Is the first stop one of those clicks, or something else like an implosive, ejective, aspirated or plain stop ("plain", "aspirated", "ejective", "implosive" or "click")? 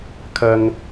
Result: aspirated